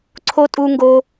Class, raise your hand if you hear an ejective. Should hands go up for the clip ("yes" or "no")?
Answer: yes